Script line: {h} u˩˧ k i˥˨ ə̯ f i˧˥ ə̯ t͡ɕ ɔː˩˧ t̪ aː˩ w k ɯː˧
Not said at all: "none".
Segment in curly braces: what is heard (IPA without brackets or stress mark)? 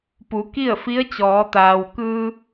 p